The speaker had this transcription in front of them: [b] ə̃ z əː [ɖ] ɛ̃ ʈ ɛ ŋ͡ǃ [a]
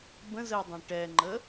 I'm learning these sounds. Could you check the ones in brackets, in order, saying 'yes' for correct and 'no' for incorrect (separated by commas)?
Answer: yes, no, no